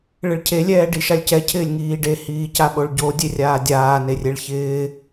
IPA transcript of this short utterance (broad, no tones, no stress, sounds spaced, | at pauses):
ɭ ɪ ɭ cʰ e lʲ ɛː ɖ i ʃ a lʲ c ɛ cʰ ɪː lʲ ŋ iː ɖ e h iː c a ɓ o ɭ ɟ o dʲ e rʲ aː dʲ aː n e rʲ e ɭ ç ɪː